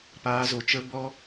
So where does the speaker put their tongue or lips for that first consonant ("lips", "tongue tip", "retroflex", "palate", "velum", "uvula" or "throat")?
lips